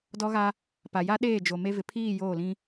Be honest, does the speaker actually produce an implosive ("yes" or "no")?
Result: yes